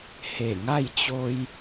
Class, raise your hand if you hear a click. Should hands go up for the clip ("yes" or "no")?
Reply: no